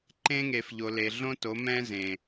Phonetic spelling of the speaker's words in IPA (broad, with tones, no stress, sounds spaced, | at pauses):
ǃ ẽ˦ ŋ e˨ f ʎ o˨ l e˨ ɮ õ˦ t o˨˦ m ɛ̃˦ z ẽ˨